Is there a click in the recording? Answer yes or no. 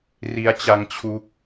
no